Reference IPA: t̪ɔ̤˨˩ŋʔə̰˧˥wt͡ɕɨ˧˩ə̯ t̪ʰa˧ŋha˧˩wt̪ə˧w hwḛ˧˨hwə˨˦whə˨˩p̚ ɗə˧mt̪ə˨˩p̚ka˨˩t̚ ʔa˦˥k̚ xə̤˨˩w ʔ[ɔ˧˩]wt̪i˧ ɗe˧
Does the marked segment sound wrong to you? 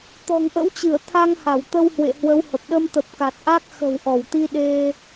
no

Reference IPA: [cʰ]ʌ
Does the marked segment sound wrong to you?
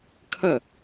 yes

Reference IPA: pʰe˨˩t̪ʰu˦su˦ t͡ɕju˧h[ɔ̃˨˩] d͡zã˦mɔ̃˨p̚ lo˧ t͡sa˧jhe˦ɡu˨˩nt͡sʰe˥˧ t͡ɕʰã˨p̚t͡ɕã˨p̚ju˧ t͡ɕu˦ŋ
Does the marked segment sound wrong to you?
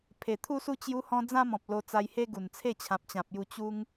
yes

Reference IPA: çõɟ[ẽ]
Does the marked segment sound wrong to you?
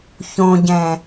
yes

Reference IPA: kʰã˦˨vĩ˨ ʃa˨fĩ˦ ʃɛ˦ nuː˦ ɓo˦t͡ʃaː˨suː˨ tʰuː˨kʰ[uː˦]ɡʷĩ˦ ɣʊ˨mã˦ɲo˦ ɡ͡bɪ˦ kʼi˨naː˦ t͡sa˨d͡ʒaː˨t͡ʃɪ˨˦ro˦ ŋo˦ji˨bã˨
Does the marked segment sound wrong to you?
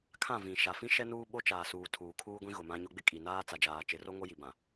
no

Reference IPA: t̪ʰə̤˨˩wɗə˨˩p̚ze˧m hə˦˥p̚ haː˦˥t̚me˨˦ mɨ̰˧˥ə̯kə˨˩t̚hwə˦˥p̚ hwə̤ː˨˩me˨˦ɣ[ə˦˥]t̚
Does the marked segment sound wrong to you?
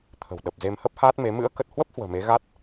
yes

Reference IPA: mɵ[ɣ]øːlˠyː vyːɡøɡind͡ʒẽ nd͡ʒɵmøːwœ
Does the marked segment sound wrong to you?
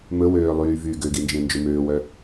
yes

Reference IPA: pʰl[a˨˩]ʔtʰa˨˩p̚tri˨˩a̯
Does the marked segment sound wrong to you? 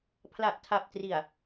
no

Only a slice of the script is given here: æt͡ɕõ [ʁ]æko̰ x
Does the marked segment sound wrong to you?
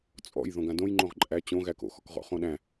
yes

